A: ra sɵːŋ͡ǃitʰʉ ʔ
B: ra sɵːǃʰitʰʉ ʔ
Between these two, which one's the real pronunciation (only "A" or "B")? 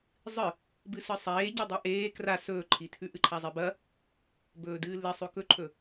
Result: B